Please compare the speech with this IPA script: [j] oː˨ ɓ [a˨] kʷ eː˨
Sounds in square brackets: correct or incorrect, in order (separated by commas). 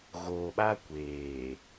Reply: incorrect, incorrect